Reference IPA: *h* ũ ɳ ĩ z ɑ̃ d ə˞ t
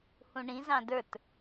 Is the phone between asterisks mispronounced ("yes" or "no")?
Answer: no